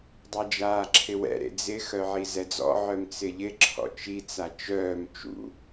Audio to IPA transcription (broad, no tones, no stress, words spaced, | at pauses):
dˤɛd͡ʒaːǁʰɪwɛ̰ ɾḛd͡zɪ xœʕizɛd͡zɔ̰ ʕœmt͡sɪʎɪ ǁʰɔ̰t͡ʃi t͡sat͡ʃœːm t͡ʃṵ